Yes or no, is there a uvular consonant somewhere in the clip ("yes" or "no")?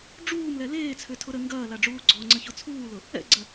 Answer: no